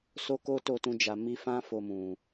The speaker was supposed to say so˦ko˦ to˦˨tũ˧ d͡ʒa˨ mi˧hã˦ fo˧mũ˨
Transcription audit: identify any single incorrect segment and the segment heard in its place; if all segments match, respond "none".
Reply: h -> f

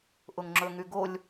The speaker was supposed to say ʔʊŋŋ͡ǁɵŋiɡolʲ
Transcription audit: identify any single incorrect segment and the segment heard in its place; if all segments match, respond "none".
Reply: i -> y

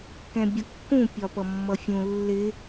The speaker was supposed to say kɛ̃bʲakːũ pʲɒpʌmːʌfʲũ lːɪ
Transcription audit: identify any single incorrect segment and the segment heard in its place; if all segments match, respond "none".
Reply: a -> ʌ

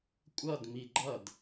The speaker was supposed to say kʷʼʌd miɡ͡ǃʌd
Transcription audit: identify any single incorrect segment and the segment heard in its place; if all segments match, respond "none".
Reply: none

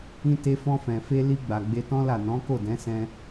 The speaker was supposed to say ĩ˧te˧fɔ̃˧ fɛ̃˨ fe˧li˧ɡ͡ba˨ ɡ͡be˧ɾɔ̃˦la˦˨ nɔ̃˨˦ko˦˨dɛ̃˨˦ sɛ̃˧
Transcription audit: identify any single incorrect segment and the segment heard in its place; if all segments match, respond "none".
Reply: ɾ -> t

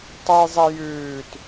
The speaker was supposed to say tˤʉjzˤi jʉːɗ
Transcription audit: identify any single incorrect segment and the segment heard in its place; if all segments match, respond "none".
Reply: ɗ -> t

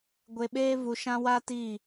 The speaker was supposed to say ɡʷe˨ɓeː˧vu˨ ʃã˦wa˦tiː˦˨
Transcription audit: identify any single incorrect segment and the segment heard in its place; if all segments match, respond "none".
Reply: none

